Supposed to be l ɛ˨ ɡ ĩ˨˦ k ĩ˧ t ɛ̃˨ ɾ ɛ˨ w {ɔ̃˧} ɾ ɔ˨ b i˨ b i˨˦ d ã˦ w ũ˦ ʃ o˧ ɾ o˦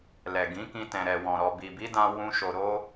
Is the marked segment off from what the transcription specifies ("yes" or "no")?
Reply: yes